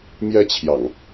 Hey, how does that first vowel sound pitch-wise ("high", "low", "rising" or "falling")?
high